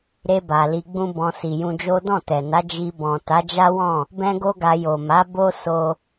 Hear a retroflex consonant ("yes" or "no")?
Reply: no